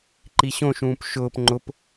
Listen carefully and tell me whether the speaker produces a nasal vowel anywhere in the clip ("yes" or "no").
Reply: yes